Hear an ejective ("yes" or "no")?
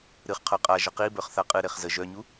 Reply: yes